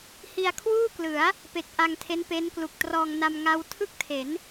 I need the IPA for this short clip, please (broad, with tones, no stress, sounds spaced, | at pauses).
h i˧ a̯ kʰ w uː˥˩ k l ɯ˩˦ a̯ | p e˨˩ k̚ ʔ a˧ ŋ tʰ e˦˥ n p e˦˥ n k l u˨˩ k̚ t r ɔː˧ ŋ n a˧ m ŋ a˦˥ w tʰ ɯ˥˩ k̚ tʰ e˩˦ n